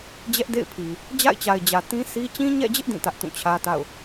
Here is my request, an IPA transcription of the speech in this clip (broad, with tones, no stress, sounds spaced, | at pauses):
d͡ʑ ɛ˦ ʔ d ḛ˦˨ ɪ̯ pʰ i˨ | d͡ʑ a̰˦˨ ɪ̯ t͡ɕ a˨ ɪ̯ d͡ʑ ä˨ t ĩ˦ s i˦ t͡ɕ ĩ˦ ɲ ɛ̰˦˨ d͡ʑ ɪ˦ ʔ d ĩ˦˨ t ä˦ ʔ t ũ˦˨ t͡ɕʰ ä˦ t a̰˦˨ ʊ̯